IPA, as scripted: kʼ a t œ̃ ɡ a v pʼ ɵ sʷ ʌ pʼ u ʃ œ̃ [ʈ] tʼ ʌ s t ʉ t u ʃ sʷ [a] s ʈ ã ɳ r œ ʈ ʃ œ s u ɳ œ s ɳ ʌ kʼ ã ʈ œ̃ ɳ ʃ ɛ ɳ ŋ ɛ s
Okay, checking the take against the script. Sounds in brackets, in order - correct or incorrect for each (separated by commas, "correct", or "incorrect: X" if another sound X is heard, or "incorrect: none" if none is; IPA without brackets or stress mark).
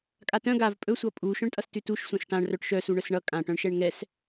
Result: incorrect: ɳ, incorrect: ã